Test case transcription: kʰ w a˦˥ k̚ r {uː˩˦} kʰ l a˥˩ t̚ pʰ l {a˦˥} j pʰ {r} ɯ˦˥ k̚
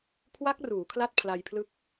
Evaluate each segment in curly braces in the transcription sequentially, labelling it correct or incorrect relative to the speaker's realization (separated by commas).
correct, incorrect, incorrect